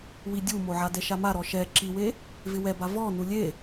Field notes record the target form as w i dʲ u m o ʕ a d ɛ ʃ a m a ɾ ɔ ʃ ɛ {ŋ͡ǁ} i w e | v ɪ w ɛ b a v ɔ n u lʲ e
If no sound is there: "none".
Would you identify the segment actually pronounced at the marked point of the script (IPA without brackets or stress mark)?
ǁ